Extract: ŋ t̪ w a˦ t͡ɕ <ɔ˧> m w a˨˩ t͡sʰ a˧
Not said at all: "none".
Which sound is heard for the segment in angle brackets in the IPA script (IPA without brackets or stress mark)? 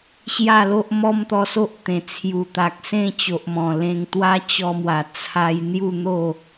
ɔ˧